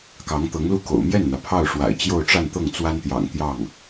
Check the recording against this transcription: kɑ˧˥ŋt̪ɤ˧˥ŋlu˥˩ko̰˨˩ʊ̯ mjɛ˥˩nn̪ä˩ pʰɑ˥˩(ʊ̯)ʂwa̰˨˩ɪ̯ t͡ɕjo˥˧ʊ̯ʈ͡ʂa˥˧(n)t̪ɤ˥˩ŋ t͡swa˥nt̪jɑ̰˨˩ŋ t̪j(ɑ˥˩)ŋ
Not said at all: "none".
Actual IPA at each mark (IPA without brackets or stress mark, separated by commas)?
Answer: ʊ̯, n, ɑ˥˩